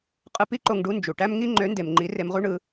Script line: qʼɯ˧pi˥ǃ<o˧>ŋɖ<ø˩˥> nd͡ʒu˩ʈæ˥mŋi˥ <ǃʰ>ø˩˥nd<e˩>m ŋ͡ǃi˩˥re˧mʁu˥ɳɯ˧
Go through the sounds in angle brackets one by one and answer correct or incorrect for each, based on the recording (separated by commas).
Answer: correct, incorrect, incorrect, correct